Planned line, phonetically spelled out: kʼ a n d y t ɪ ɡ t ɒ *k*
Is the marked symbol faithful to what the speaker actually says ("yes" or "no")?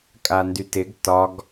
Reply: no